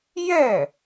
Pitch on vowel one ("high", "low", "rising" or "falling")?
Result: falling